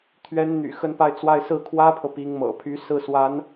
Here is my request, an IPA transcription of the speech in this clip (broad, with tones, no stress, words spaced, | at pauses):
t̪ʰɥɛ˧˥nn̪y̰˨˩ xə˥˧npa˥˧ɪ̯t͡swa˥˧ɪ̯ sɹ̩˥˩kʰwä˥pʰɤ˨ pi˧˥ŋmɤ̰˨˩pʰy˧˥ sɹ̩˥˩swa˧˥n